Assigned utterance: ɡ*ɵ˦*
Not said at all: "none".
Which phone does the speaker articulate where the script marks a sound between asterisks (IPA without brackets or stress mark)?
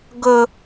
ɵ˦